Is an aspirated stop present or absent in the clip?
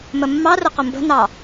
absent